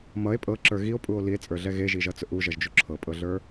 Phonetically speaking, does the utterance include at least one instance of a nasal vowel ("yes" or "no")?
no